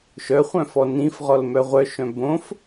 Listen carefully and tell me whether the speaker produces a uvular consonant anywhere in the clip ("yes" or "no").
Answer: yes